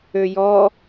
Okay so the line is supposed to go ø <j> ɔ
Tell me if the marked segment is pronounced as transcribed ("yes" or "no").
yes